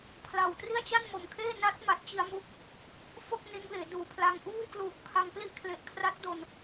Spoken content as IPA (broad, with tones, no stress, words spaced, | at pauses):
pʰla˨˩w tri˥˩a̯t͡ɕa˥˩nmo˨˩mkʰeː˥˩ na˦˥t̚ma˨˩t̚ t͡ɕi˧a̯mu˦˥k̚ | fo˥˩k̚ ni˦˥nbeː˩˦duː˨˩pʰla˧ŋ ʔuː˥˩kluː˨˩k̚pʰa˧ŋ pli˥˩ʔkʰle˨˩ʔkʰra˦˥t̚ do˧n